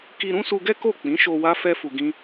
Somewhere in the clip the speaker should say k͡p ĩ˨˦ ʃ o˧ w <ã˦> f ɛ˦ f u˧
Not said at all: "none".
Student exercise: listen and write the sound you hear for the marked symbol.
a˦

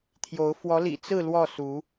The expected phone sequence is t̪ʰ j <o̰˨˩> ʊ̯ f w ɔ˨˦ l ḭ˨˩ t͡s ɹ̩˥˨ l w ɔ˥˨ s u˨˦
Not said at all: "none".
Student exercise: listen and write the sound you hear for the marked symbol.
o˨˦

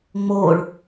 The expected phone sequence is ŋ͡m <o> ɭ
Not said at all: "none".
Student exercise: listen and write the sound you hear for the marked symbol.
o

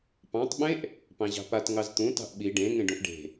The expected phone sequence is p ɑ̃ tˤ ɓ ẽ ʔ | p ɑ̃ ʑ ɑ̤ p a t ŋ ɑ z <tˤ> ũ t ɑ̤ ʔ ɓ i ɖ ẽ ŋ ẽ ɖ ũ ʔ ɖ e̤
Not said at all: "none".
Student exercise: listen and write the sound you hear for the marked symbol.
t̪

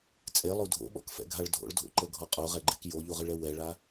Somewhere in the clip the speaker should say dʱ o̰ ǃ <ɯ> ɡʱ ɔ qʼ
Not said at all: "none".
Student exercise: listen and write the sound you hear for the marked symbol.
ɤ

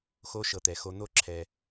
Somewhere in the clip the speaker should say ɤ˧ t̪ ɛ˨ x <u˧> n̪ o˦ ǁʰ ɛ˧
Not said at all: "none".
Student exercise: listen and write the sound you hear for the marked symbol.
o˧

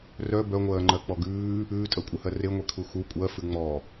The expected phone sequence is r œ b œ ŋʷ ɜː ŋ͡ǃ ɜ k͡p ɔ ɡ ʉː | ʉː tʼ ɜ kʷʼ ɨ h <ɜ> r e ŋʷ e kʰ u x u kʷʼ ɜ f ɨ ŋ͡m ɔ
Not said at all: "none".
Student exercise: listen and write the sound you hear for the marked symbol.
ɜ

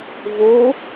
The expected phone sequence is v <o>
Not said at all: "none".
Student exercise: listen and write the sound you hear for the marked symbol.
o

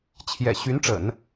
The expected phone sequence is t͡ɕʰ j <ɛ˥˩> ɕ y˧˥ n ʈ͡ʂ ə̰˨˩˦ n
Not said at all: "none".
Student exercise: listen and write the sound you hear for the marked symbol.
ɛ̰˨˩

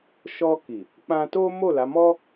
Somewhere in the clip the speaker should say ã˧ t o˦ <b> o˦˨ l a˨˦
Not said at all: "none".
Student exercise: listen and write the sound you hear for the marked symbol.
m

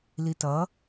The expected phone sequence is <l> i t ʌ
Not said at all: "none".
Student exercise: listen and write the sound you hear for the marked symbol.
l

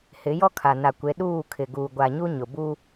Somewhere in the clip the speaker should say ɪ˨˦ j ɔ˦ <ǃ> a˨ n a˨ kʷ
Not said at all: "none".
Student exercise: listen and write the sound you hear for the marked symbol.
kʰ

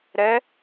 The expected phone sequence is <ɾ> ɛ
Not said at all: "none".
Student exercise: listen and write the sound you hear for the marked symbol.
ɾ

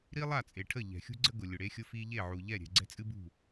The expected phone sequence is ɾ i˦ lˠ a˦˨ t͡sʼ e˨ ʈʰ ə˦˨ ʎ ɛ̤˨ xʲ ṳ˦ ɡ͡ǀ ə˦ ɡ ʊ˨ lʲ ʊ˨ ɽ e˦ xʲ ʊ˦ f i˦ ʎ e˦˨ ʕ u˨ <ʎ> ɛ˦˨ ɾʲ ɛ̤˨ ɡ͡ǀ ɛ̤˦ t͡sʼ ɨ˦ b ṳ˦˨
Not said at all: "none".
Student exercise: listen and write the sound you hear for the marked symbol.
ʎ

